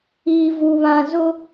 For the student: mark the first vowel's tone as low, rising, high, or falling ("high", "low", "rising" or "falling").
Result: low